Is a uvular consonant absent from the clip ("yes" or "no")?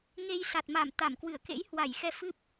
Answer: yes